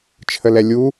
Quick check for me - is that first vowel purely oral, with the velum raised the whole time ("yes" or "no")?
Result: yes